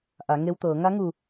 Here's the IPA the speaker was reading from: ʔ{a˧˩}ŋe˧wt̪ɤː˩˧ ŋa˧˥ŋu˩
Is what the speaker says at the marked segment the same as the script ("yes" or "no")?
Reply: no